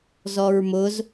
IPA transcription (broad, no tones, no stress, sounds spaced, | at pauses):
z ɔ ɹ m ʊ z